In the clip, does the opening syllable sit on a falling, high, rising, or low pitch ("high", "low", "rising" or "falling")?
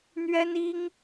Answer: high